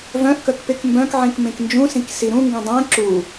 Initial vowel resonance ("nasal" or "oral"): nasal